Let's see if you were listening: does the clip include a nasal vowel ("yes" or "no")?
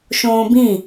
yes